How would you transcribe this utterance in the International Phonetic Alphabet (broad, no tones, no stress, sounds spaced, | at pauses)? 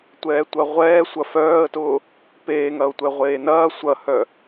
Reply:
tʷ ɛː tʷ ɐ ʁʷ ɛː sʷ ɐ f œː ə̯ t ʊː | p eː ŋ ɐ ʊ̯ tʷ ɛ ʁʷ eː n ɐː sʷ ɐ h œ